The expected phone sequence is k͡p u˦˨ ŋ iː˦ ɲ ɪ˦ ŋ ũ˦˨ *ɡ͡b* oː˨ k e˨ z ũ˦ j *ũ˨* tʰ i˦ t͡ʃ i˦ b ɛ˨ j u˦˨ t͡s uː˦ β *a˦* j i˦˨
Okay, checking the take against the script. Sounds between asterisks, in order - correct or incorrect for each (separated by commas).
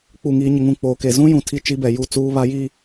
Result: incorrect, correct, correct